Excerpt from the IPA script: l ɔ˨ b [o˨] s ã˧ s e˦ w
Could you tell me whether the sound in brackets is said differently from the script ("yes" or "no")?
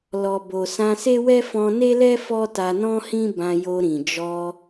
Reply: no